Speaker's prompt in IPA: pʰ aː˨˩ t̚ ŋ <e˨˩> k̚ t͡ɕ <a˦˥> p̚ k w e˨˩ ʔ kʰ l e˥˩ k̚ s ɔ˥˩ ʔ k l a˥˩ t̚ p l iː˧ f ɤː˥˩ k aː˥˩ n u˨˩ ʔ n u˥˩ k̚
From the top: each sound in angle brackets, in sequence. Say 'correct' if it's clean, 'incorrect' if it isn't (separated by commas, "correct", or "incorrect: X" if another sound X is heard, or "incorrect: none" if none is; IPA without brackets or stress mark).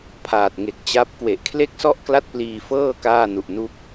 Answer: correct, correct